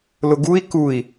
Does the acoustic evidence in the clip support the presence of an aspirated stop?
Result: no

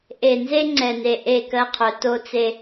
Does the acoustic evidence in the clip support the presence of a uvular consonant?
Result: yes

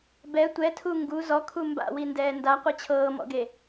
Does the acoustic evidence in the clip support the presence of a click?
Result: no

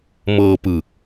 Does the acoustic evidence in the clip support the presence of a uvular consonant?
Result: no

